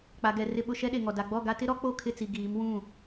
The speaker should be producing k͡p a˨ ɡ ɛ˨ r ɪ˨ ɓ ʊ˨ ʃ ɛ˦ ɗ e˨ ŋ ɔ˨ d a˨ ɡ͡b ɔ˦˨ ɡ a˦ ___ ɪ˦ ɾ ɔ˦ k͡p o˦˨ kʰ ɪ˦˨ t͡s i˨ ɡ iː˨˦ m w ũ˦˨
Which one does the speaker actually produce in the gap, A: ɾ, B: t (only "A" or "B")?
B